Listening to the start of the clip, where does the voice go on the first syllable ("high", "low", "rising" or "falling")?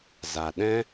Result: low